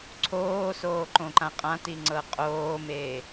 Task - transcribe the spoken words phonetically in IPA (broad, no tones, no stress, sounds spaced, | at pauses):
ǀʰ oː s oː ǃ õ ǃ ã qʼ ã t i ŋ͡ǀ ɤ qʼ oː m e